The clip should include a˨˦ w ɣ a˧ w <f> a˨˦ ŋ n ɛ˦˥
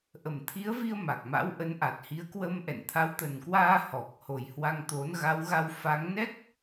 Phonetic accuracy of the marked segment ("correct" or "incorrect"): correct